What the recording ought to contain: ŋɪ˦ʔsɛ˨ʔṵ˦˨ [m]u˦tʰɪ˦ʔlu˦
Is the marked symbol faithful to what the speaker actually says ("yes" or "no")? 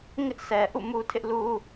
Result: yes